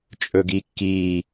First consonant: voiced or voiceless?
voiceless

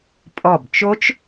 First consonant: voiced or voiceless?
voiceless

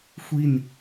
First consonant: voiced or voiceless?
voiceless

